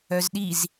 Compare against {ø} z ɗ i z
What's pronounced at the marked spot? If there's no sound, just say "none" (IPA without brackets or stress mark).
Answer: œ